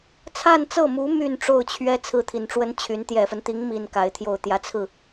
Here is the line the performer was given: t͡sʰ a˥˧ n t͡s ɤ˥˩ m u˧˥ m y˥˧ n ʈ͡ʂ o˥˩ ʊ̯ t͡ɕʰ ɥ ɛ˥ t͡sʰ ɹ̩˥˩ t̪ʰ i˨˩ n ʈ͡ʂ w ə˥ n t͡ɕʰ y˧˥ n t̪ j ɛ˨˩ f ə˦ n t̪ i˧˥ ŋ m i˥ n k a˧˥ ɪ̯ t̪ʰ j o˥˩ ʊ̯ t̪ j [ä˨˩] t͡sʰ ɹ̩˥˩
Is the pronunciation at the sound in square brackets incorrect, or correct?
correct